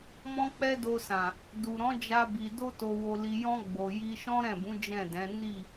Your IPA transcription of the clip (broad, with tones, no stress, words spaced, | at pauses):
mɔ̃˦k͡pɛ˦do˧sã˨ | du˨ɾɔ̃˨˦ d͡ʒa˧bi˨ do˧to˨ wo˨li˨jɔ̃˧ ɡ͡bo˨ ji˧ʃɔ̃˦ ɾɛ̃˦˨bũ˨˦ d͡ʒɛ̃˦˨dɛ̃˨˦ ni˦˨